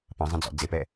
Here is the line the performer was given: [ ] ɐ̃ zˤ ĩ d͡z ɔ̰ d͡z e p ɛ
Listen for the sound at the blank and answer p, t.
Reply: p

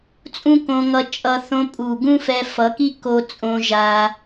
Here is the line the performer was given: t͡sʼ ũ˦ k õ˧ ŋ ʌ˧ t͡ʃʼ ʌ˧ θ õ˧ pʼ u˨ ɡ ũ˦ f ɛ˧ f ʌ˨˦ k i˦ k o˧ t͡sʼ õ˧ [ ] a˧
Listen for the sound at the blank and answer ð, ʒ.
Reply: ʒ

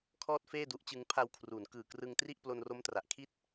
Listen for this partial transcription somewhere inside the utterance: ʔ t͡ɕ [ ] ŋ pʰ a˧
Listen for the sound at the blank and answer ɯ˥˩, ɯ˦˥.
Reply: ɯ˦˥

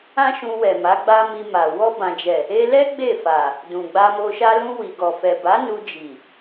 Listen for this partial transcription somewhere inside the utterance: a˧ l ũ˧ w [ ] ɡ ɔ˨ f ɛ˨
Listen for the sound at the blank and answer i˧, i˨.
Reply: i˨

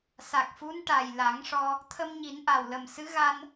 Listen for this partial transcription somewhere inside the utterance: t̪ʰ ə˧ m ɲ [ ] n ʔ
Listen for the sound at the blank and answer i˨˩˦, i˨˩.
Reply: i˨˩˦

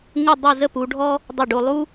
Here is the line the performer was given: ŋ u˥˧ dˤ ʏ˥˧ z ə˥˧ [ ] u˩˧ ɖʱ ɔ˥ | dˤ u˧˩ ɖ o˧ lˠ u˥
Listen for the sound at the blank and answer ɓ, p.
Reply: p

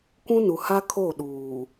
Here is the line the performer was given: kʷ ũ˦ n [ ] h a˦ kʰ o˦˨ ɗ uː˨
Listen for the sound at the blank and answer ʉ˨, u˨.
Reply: u˨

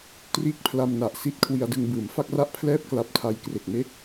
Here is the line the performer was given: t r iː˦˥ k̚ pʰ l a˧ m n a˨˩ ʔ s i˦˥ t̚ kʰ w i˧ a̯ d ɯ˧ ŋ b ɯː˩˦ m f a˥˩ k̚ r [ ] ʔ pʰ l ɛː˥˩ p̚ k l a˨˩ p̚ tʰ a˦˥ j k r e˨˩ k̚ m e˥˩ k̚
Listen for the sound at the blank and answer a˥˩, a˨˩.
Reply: a˥˩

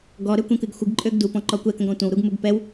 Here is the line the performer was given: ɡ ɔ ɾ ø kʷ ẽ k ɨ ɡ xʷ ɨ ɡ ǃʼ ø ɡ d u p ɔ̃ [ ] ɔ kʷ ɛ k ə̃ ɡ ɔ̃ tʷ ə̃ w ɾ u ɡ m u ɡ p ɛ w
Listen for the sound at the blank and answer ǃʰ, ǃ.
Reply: ǃ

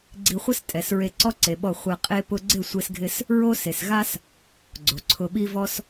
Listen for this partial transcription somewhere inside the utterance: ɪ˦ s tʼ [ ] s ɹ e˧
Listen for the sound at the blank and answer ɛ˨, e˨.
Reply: ɛ˨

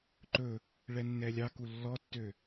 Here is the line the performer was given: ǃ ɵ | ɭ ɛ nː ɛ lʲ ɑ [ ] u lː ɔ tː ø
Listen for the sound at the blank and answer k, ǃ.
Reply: k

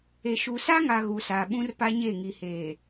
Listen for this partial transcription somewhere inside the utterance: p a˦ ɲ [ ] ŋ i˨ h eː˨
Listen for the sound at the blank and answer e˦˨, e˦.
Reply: e˦˨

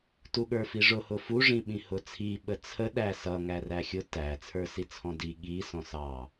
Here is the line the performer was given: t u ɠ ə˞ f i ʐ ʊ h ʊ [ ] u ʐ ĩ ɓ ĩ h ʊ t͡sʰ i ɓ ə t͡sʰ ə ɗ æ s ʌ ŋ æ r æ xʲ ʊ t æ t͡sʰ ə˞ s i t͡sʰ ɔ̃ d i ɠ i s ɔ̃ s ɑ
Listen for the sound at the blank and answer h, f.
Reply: f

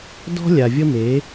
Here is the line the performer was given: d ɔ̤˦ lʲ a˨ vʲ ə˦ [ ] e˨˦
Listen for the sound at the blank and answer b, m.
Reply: m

